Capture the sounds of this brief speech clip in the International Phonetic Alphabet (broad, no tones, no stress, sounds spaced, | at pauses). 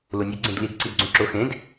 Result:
l ʊ nʲ e ɡ͡ǀ ẽ d l i d ǀ i d ɡ͡ǀ ũ ǁ ʊ x ẽ d